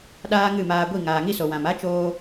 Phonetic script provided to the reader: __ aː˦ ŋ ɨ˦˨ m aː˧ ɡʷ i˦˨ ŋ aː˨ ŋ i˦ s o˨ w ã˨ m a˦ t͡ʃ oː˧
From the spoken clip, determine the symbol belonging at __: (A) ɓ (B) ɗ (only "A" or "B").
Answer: B